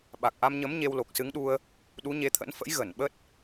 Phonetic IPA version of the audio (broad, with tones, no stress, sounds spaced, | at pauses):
ɓ a˨˩ k̚ ʔ a˧ m ɲ ə˨˦ m ɲ e˧ w l o˨˩ k̚ s ɨ˨˦ ŋ ɗ u˧ ə̯ | ɗ u˨˦ ɲ e˧ t̪ʰ ə̰˧˥ n f ə̰˧˥ j ɣ ə˧˩ n ɓ ə˦˥ t̚